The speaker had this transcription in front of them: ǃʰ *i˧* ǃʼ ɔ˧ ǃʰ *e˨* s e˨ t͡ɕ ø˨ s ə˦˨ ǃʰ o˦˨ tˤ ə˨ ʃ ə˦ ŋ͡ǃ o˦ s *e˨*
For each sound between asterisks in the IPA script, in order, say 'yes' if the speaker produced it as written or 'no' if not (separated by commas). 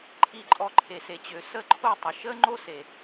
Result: yes, yes, yes